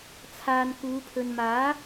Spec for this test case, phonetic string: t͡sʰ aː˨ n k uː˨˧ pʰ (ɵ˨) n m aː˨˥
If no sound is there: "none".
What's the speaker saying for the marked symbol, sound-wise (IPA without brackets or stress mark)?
ɵ˨